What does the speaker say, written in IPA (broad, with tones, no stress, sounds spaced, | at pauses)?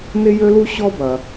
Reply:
n ɪ˧ j ø˧ l u˧ ɕ ɔ˥ b ɐ˩